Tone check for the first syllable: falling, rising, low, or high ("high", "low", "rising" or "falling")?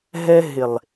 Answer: high